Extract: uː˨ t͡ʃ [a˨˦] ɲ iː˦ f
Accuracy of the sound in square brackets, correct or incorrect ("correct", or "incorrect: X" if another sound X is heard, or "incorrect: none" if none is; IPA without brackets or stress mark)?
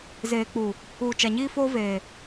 incorrect: a˨